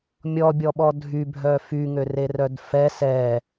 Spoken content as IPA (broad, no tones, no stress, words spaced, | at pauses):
mʲɔbʲɔɓɔ dʱy bʱœfyŋøre rœdfɛ sɛ